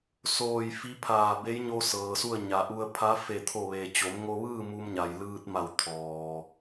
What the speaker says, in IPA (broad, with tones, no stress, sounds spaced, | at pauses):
s oː˧˩ j f i˧˥ pʰ aː˧˩ b e˧˥ j ɲ o˧ s ɤː˩ s u˥˨ ə̯ ɲ a˩˧ ʔ u˧ ə̯ pʰ a˧˥ f e˧˩ t̪ʰ o˧˩ ʋ e˩ t͡ɕ o˩˧ m ŋ o˧ ʋ ɯː˥˨ m u˧ m ɲ a˩ j l ɯː˧ t̚ m a˧˩ w t̪ʰ ɔː˩